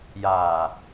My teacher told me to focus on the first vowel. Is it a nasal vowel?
no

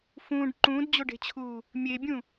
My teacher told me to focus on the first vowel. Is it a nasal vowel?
yes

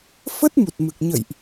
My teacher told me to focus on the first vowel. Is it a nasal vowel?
no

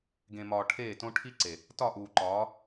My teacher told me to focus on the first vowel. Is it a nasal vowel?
yes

